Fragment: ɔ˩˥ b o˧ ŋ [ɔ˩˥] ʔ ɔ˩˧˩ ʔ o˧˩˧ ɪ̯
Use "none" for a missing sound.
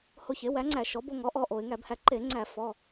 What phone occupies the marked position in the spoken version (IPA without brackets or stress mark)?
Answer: ɔ˩˥